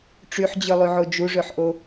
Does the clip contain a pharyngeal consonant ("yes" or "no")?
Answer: yes